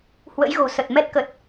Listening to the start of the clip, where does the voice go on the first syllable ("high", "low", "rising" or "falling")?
rising